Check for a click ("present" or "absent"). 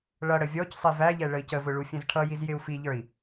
absent